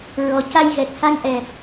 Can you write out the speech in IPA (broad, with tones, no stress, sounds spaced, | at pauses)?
ɹ ɔ˨˩ c a˧ j ɣ ɛ˨˩ k̚ h a˧ ŋ ʔ ɛ˨˩ p̚